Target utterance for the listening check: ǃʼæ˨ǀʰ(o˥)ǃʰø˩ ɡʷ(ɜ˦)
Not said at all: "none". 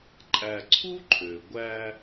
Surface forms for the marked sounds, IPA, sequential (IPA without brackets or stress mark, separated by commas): u˥, æ˦